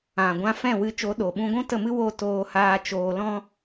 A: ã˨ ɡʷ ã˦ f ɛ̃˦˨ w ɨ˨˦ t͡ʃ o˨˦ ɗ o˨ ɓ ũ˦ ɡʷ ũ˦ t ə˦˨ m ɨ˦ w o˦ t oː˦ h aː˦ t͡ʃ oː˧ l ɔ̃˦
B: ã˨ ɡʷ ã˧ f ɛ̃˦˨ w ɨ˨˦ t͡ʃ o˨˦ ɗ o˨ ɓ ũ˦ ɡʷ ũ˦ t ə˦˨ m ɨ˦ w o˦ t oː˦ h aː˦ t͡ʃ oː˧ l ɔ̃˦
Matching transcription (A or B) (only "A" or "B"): B